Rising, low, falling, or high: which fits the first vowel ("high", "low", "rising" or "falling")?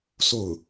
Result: falling